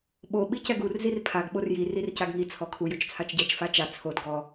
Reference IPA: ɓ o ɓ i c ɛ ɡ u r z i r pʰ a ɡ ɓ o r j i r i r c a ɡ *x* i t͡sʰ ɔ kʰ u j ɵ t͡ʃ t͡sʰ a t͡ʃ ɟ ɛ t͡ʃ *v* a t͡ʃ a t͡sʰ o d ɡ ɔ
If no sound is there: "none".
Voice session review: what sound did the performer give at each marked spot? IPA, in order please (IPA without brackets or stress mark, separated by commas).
ŋ, f